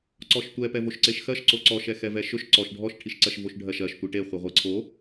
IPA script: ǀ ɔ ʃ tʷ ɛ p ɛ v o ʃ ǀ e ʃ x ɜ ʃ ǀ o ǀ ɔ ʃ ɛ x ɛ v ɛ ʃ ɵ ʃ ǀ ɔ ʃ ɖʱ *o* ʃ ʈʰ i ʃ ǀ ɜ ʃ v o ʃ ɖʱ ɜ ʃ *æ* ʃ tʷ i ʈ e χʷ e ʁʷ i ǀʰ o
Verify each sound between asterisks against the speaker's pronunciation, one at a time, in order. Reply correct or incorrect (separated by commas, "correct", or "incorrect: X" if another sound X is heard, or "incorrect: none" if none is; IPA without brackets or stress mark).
incorrect: ɔ, incorrect: ɜ